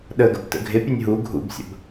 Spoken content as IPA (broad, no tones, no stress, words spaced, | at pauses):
ɗəɡə̰btə̰ ɡʱɪpʲenʲ ɦu ɡʱṵbsʲə̰b